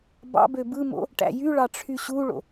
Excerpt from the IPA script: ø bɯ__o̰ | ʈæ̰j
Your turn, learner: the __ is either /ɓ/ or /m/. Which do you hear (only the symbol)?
m